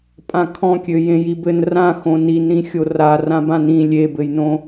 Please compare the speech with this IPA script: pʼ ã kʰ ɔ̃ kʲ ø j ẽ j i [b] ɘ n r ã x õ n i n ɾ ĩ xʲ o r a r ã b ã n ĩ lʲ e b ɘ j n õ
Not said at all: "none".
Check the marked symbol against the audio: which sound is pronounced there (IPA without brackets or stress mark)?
b